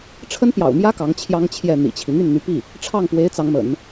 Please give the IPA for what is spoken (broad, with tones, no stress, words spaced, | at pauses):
ʈ͡ʂʰə˥npjɑ̰˨˩ʊ̯mjä˥ kɑ˧˥ŋt͡ɕʰjɑ˥ŋ t͡ɕʰjɛ˥˩n̪ḭ˨˩t͡ɕʰi˦ n̪y˥˩nn̪y˧˥pi˥˩ | ʈ͡ʂʰɑ˥˩ŋpwe˧˥ɪ̯ t͡sɑ˧˥ŋmə̰˨˩˦n